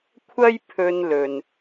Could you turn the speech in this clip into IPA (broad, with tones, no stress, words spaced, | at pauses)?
kʷʰɐ˥j pʰɵ˧nlɵ˨n